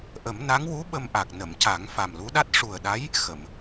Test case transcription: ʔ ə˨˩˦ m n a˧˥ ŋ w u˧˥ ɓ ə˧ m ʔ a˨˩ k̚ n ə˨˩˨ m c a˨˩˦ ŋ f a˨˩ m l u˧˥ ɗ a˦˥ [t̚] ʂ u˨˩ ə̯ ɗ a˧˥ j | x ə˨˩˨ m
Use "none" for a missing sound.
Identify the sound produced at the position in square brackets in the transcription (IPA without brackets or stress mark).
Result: t̚